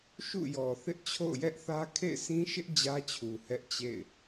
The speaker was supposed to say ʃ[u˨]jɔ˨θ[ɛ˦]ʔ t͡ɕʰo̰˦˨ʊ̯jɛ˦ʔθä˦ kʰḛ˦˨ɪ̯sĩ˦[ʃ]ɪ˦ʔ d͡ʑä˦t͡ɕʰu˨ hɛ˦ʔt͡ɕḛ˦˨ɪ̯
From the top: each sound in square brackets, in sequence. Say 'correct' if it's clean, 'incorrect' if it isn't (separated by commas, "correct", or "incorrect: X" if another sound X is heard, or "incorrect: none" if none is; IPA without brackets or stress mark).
incorrect: ṵ˦˨, incorrect: ɪ˦, correct